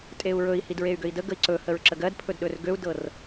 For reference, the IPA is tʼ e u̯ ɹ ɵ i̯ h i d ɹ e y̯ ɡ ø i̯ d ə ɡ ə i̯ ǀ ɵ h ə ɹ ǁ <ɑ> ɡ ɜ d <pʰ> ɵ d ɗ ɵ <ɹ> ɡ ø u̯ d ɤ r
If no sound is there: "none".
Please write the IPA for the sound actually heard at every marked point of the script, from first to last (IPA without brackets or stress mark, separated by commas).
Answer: ə, pʰ, r